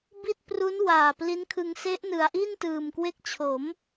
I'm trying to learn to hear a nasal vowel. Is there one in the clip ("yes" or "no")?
no